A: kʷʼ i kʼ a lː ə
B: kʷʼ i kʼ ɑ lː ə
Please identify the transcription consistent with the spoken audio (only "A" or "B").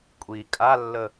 A